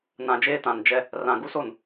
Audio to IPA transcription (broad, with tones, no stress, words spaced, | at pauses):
nã˨d͡ʒeː˦ tã˨nd͡ʒɛ˦ | rã˨ ɡu˦so˦˨n